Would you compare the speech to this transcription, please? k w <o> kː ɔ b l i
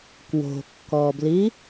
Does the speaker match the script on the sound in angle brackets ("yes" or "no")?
no